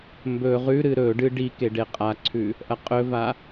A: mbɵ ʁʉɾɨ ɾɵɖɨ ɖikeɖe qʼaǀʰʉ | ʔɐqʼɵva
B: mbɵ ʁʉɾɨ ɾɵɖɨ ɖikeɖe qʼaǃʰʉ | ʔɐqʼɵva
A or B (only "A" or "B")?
A